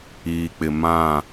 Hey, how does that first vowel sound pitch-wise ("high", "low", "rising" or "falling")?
low